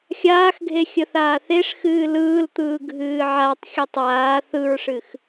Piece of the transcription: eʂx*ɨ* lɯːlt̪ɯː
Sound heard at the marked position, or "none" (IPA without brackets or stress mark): ɨː